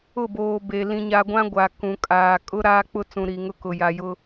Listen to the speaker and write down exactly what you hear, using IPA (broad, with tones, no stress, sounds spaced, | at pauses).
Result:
ʊ˦˨ b oː˨ b e˨ l ĩ˨ ɲ a˨ ɡʷ ã˦ ɡʷ a˨ k ũ˨ kʼ aː˨ kʼ ʊ˦ ɾ aː˦ k͡p ʊ˦ t͡s ũ˨ ɾ i˨ ŋ ʊ˦ k ʊ˨ j a˨ j ʊ˦